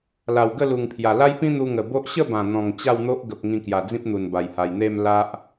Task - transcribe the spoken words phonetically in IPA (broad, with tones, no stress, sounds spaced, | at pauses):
l a˨˩ w ɡ ə˥˧ l u˨˩ ŋ pʰ j a˨˩ l a˦ j p ĩ˦ n̪ u˧ ŋ ə˨˩ b o˦ ʔ ɕ ə˥˧ b ã˨˩ n̪ ɔ̃˨˩ ŋ t͡ɕ a˥˧ w n̪ o˦ ʔ ɡ ə˨ p̚ ŋ ĩ˧ k j a˨˩ d͡z ĩ˦ p̚ n̪ u˨˩ n b a˨˩ j h a˨˩ j n̪ e˥˧ m l a˦ ʔ